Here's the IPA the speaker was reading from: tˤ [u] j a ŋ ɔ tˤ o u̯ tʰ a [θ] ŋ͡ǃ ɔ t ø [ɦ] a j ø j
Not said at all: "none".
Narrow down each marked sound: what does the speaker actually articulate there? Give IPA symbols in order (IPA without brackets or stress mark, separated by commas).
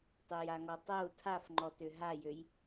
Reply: ø, f, ɦ